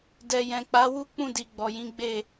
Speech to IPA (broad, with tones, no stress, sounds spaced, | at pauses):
d ɛ˨ j ɛ̃˨ k͡p a˨˦ w u˦ k͡p ũ˦˨ d i˨ ɡ͡b ɔ˨ j ĩ˨˦ ɡ͡b e˦˨